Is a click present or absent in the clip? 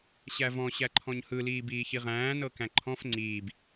present